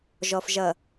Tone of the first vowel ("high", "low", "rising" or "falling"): low